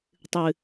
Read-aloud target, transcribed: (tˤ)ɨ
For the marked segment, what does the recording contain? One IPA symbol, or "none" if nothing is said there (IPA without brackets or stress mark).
tˤ